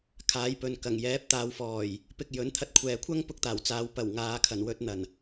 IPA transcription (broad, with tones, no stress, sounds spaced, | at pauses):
kʰ aː˨˥ j p ɵ˨ n k ɐ˨˩ ŋ j ɛː˨˥ p̚ t̪ aː˨˧ w f ɔː˨˩ j | p ɪ˧ k̚ j ɵ˨˥ n t̪ʰ ɐ˧ t̚ kʷʰ ɛː˨ kʷʰ ɐ˥ ŋ p ʊ˥ k̚ t̪ aː˨˩ w t͡s aː˨˥ w p ɐ˨˩ w ŋ aː˨˧ kʰ ɐ˨˩ n w ɵ˧ t̚ n̪ ɐ˨˩ n